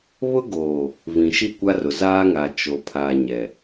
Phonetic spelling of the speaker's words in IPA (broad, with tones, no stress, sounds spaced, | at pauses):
β ʊ˦ ɡ oː˨ | v ĩ˨ ʃ i˦˨ kʷ a˦ r ʊ˨ z aː˦ ŋ a˨ t͡ʃ o˨ pʰ a˨ ɲ ɛ˨